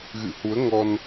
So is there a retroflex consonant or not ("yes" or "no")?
no